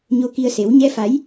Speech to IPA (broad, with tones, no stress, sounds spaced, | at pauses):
ɲ o˧ k i˧ ə̯ s e˨˦ w ɲ ɛ˧ f a˨˦ j